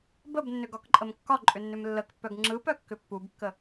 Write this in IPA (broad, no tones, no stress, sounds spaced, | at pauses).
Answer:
b ə b nː ʏ ɡ ɒ k ǃʼ ə m kː ɒ ǃʼ ʏ nː ʏ m lː ə k pː œ ɡ ŋ͡ǁ ɯ p œ kː ʏ pː u b kː ə